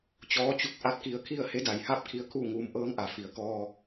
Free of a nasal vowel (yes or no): yes